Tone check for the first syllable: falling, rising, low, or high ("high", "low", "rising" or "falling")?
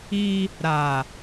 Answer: high